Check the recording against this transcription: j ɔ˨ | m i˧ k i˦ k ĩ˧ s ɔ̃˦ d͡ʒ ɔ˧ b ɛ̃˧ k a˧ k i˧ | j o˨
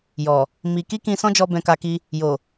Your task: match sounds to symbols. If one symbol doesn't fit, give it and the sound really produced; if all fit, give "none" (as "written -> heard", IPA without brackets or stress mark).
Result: none